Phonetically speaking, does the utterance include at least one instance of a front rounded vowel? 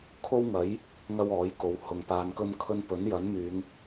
yes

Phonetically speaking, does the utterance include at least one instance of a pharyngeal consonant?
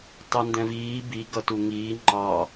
no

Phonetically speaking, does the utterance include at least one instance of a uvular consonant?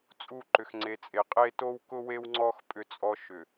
yes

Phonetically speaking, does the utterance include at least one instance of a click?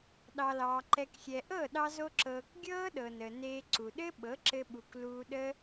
yes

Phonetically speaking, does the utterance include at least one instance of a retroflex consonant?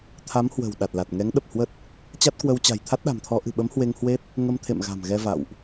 no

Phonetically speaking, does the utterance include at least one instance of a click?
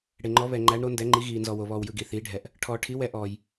yes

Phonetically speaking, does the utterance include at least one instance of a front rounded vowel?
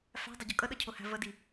no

